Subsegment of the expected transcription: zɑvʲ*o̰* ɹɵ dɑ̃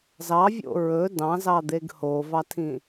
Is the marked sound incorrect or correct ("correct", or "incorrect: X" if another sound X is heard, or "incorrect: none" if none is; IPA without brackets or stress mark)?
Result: correct